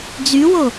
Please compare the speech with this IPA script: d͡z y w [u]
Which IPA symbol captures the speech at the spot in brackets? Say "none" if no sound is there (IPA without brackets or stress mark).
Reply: o